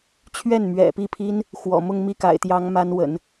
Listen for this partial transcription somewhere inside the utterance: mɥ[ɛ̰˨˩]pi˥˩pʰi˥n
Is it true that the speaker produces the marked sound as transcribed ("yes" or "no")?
yes